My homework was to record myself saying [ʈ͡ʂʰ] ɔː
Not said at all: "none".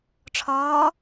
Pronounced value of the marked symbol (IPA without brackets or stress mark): ʈ͡ʂʰ